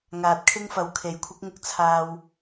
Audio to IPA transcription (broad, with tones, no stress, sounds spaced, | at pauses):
ŋ aː˨ t̚ kʰ ɪ˥ ŋ f ɐ˨ w kʰ e˨˥ j kʷʰ ɪ˨˥ k̚ ŋ ʊ˧ k̚ t͡sʰ aː˧ w